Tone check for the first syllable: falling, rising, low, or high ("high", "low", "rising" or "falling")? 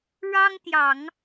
high